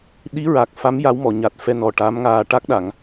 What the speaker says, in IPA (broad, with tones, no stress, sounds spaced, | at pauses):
ɗ i˧˥ ɹ a˨˩ k̚ f a˧˥ m j a˧˥ w m ɔ˨˩˨ ɲ a˨˩ t̚ f ɛ˧ n ɔ˨˩ ʈ a˧˥ m ŋ aː˧ ʈ a˦˥ k̚ ɗ a˨˩˨ ŋ